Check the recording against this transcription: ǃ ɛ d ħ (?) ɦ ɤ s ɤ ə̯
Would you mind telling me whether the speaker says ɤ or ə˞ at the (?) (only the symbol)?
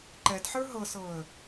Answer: ə˞